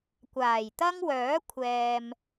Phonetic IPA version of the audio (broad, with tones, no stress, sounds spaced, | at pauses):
kʷ aː˨˩ j t̪ ɐ˥ ŋ w œː˨˥ kʷʰ ɛː˨ m